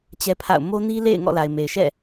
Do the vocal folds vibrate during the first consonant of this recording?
no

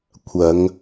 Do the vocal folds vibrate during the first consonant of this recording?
no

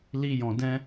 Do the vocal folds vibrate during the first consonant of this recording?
yes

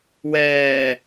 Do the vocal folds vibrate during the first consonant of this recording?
yes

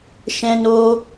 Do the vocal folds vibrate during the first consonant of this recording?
no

